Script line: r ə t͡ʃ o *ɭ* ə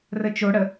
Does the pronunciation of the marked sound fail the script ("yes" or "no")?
yes